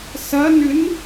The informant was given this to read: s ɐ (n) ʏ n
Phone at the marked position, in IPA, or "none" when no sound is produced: n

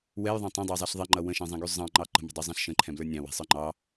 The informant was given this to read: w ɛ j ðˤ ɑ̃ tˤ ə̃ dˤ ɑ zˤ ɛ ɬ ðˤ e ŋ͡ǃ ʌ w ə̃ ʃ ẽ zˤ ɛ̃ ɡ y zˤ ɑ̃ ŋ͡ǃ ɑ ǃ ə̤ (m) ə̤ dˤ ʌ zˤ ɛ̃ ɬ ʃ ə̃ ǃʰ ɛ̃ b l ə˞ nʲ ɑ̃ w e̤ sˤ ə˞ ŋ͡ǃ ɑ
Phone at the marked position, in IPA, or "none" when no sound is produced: m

